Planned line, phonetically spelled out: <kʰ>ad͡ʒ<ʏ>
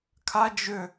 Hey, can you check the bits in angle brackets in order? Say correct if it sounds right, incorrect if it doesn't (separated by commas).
correct, correct